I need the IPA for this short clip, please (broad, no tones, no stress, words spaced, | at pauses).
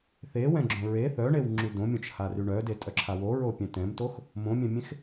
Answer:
θewɛ̃ɡ͡ǁõ ɹe θœɳewŋ͡ǁy dõmʲõt͡ʃhary ɳœdetʼœǁʰa woɹopʲɛ̃ tɛ̃mtox | mõmʲɛ̃mʲẽx